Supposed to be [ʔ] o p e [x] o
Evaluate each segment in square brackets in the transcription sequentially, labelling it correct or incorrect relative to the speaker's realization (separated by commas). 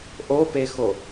correct, correct